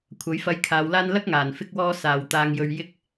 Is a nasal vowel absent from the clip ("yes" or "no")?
yes